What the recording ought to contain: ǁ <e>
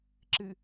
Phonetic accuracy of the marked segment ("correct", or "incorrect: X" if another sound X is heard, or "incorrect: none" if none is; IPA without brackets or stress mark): incorrect: ɨ